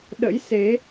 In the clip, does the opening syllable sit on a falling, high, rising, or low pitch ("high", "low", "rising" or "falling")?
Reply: rising